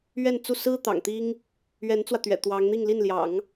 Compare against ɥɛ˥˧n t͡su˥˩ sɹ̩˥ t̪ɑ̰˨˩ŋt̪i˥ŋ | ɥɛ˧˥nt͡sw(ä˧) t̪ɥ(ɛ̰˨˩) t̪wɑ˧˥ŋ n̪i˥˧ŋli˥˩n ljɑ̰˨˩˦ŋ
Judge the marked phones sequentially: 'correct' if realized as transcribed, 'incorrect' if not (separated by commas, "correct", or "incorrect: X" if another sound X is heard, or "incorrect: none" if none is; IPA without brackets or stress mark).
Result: correct, correct